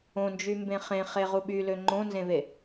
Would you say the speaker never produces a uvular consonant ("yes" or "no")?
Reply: no